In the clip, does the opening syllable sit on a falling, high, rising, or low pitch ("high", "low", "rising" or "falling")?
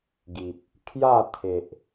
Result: low